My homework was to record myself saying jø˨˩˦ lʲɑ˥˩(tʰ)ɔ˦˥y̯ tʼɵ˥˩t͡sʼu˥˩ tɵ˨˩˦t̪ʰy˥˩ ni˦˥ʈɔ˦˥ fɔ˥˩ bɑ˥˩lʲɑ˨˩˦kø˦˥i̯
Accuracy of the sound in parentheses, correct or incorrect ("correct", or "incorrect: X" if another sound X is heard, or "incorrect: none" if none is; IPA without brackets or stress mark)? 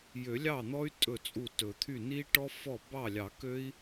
incorrect: n̪